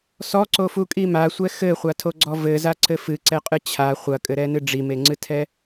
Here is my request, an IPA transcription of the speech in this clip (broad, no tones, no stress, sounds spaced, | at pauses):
s ɔ ǀ o f u kʼ i m a sʷ ɛ x ɘ χʷ a tʰ o ɡ͡ǀ ɔ v ɘ z a ǀ ɘ f ɨ ǀ ɛ qʼ ɨ t͡ɕʰ a χʷ ɐ kʼ ɘ ɾ ɛ n ɨ ɖ͡ʐ i m e ŋ͡ǀ ɨ tʰ ɛ